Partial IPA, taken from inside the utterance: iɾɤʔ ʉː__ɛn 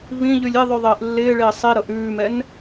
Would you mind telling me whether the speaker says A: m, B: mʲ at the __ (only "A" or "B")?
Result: A